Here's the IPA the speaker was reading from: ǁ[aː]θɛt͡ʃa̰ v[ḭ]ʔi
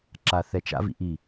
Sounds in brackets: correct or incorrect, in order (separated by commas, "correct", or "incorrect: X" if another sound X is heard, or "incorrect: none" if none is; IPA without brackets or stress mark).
correct, correct